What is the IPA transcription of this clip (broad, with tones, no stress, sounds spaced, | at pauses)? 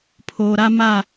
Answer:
pʰ oː˨ ɾ a˦ m a˦˨